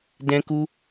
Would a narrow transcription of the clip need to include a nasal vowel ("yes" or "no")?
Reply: yes